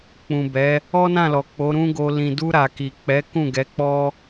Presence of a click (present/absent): absent